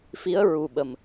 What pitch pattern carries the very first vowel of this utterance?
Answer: rising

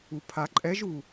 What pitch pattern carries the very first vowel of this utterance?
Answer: low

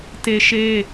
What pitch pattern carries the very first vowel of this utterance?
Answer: high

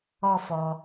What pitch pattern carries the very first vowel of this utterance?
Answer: high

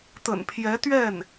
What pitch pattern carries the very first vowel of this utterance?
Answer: low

